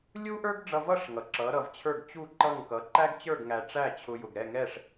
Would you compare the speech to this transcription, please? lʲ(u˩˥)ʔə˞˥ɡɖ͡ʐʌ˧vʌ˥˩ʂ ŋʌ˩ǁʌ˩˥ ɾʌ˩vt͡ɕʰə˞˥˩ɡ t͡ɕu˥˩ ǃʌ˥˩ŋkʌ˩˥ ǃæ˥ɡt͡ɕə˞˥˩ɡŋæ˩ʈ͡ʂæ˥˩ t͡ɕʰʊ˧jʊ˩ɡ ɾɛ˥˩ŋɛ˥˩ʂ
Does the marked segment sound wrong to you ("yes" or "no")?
yes